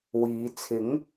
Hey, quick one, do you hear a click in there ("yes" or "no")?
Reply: no